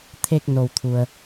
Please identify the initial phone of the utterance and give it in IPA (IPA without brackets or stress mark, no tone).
t̪ʰ